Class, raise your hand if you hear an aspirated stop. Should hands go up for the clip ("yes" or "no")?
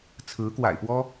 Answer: yes